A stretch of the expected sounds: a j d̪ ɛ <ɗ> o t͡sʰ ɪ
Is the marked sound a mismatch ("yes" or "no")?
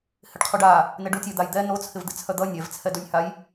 yes